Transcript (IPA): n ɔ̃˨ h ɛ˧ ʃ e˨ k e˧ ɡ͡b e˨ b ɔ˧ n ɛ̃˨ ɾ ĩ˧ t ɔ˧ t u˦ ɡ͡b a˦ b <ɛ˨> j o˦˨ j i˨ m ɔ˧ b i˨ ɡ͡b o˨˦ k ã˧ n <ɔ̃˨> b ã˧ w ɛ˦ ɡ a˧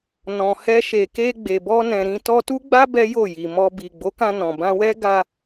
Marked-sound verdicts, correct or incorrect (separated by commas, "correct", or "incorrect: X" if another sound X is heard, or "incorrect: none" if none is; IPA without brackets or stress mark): incorrect: ɛ˦, correct